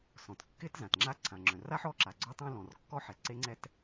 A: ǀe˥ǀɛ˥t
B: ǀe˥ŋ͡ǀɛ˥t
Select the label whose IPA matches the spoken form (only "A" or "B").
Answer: B